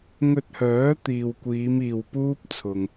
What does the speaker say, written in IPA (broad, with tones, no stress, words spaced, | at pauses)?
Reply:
ŋɵ˧t̚hœː˨˥ t̪iː˨wkʷiː˨˧m iː˨wpuː˥p̚ t͡sʰʊ˧ŋ